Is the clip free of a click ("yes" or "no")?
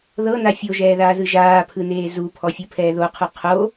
yes